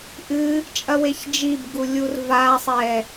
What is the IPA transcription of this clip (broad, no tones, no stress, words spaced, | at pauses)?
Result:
ʔɨ | t͡ʃʼɐweçd͡ʒibɡu lʲurvasˤɛ